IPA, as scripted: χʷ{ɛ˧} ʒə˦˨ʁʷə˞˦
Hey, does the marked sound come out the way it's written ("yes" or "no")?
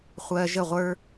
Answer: no